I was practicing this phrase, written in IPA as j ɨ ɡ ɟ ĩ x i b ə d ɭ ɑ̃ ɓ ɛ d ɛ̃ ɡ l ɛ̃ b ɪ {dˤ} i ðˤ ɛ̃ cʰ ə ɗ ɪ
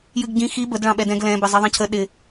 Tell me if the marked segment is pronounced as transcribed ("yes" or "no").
no